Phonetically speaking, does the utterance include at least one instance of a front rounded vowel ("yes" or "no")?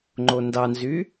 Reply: yes